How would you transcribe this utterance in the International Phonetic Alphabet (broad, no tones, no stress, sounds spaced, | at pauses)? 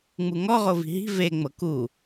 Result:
ŋ͡m u ŋ ɔ ʁ o v i̤ ɦ i̤ v e ŋ͡m ɤ k u